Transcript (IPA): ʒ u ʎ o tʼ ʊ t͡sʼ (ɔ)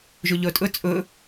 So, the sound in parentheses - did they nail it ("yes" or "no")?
no